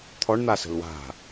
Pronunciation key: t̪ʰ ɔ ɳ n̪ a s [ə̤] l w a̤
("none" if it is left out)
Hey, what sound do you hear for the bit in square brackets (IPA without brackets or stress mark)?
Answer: ə̤